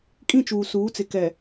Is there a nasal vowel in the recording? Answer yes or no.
yes